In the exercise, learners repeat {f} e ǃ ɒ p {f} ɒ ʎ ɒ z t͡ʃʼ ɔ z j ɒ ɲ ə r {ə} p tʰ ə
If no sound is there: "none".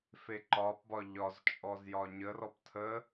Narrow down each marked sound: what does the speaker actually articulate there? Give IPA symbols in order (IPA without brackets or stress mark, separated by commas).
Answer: f, b, ɔ